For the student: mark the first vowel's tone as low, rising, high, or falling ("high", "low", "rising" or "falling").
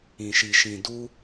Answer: low